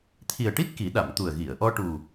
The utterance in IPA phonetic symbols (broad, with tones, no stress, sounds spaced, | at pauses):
t̪ʰ i˨˩ ə̯ ʈ i˦˥ t̚ k i˨˩˦ ɗ a˨˩˨ m t̪ u˨˩ ə̯ ɣ i˨˩˨ ə̯ ʔ ɔ˧ ʈ u˨˩